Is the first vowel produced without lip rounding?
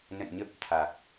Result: yes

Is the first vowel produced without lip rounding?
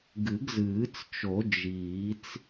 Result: yes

